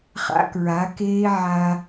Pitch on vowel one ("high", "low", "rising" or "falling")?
high